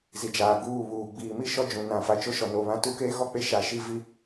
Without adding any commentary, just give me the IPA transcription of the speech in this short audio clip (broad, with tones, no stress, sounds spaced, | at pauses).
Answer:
z i˨ d͡ʒ aː˨ ɡ uː˦˨ β uː˨ ɡ͡b iː˨ m i˦ ʃ ɔ˦ d͡ʒ ũ˨ n ã˨ f a˨ t͡ʃ o˦ ʃ ɔ˨ n o˨ β ã˦ t u˦ k eː˦ ɣ ɔ˦ k͡p e˦ ʃ a˨ ʃ i˦ v i˦